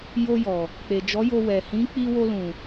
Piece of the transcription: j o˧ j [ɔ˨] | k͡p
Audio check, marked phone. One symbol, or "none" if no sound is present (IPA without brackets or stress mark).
ɔ˨